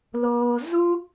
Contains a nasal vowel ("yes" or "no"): no